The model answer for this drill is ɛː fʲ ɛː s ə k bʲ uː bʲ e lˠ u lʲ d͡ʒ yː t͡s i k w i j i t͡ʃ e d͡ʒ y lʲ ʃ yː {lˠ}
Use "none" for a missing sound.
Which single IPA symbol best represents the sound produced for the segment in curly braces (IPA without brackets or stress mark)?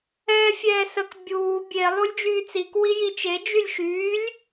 lʲ